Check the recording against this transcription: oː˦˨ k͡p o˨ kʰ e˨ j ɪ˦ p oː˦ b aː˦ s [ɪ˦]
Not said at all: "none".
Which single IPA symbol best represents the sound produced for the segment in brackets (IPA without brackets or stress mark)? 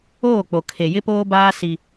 i˦